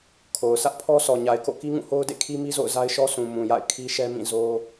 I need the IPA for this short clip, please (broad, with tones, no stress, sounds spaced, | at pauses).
kʰ o˨ ʊ̯ s ä˦ ʔ pʰ ɔ˦ s ɔ˨ ɲ a˨ ɪ̯ k o̰˦˨ k i˦ ŋ ũ˦˨ h o˦ ʊ̯ d ḛ˦˨ kʰ i˦ m i˦ z o̰˦˨ ʊ̯ z a˦ ɪ̯ ʃ ɔ˦ s ũ˨ m ũ˨ j a̰˦˨ ɪ̯ kʰ i˦ ʃ ɛ˦ m ĩ˦˨ z o˦